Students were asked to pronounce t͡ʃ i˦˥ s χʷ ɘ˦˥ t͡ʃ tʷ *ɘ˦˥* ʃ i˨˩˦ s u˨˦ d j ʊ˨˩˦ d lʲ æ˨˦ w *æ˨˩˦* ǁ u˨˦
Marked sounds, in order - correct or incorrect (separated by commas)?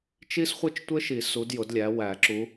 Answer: correct, correct